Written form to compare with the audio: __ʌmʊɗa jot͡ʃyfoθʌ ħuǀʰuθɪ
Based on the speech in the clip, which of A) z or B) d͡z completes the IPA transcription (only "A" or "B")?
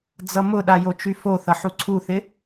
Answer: B